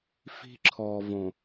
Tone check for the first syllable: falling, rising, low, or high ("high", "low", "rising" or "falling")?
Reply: high